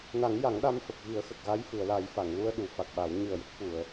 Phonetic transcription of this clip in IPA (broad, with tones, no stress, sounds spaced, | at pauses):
n a˨˩˦ ŋ j a˨˩˦ ŋ ɗ a˧ m f ə˨˩ k̚ ɣ i˨˩˦ ə̯ x ə˨˩ k̚ ɣ a˧˥ j f ɨ˨˩˨ ə̯ l a˨˩˦ j f a˨˩˨ ŋ l u˧ ə̯ ɗ u˨˩˦ f a˨˩ k̚ ɓ a˨˩˦ w ɲ ɨ˨˩ ə̯ j ə˦˥ k̚ f u˨˩˨ ə̯